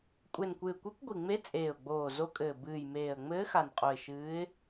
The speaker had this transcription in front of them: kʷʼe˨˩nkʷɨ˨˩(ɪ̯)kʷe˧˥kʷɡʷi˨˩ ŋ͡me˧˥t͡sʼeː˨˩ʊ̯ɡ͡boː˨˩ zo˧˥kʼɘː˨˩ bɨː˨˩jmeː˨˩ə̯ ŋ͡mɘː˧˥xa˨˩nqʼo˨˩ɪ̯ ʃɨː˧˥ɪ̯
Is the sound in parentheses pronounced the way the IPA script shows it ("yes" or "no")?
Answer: yes